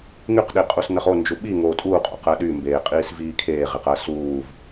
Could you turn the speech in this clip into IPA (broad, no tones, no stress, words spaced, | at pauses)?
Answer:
ŋyqɗiqʼusnɜχ ond͡ʒu ɓi ŋoːtʼuːqʼo̰ qɜɗymbeːqʼiːs viːkʰeːʁeqɜ suːv